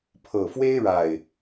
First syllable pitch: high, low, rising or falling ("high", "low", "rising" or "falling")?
low